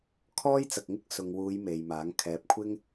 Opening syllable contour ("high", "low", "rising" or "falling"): high